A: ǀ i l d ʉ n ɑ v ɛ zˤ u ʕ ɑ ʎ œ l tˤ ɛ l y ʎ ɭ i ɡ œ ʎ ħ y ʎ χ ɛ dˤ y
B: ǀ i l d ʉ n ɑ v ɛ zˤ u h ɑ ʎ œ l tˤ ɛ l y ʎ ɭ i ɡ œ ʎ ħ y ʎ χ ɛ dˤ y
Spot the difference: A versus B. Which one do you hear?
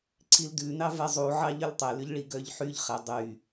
A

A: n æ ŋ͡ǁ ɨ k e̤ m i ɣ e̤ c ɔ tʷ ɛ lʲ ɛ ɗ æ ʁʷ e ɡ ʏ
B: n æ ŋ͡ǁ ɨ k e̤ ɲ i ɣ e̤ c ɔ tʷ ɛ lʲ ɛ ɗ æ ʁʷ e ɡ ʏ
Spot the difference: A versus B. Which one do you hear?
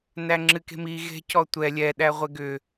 A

